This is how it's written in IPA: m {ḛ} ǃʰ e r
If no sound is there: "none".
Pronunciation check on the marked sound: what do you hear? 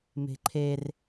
e̤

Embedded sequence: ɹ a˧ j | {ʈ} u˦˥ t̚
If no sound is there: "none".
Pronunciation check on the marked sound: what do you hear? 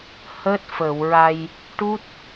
ʈ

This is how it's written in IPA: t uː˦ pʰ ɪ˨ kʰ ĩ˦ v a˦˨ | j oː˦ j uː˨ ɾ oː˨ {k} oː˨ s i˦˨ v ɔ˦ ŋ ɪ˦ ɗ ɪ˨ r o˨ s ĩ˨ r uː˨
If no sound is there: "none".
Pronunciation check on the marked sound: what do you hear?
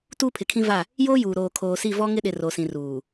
kʰ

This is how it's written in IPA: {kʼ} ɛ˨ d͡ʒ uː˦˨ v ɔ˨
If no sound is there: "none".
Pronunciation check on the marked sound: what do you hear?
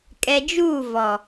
kʼ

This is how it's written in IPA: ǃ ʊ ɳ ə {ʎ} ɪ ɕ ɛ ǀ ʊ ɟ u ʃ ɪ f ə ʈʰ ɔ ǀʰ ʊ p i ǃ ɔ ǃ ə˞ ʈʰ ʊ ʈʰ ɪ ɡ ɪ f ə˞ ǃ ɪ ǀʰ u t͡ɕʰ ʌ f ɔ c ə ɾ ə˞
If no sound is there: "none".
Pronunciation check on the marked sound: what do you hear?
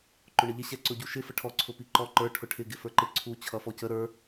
ʎ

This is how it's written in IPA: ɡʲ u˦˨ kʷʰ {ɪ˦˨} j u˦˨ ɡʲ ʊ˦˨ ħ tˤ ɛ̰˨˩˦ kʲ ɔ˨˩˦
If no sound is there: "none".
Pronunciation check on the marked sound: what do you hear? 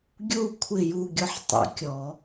ɪ˦˨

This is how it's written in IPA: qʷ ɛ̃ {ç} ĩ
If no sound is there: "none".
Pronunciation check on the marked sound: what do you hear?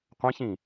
ç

